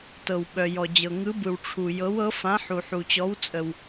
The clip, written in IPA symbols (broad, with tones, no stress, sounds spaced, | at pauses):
t ɤ˩ w ɓ œ˩ j ɔ˩ d͡ʑ ɤ˩ ŋ ɯ˨˥ b ɯ˩ w ʈ͡ʂʰ u˩ j ɤ˨˥ w ɤ˨˥ f ã˨˥ ħ u˩ ħ u˩ t͡ɕ ɔ˨˥ w t͡sʼ ə˩ w